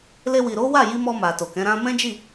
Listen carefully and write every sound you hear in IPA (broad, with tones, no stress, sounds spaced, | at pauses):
l e˧ w i˨ ɾ o˨˦ w a˦˨ j i˧ m ɔ˧ m a˨ t o˨ k ɛ̃˨˦ ɾ ã˧ m ɛ̃˦ d͡ʒ i˦˨